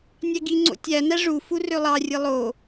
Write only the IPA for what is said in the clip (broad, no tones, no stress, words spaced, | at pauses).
nʲæɡiŋ͡ǀo̰ tʲænæ ʐu furølˠɑrʲɯ lˠo